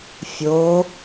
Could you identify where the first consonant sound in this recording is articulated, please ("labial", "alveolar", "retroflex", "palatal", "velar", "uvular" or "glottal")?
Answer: labial